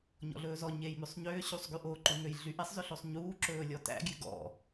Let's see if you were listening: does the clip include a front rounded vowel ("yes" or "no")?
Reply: yes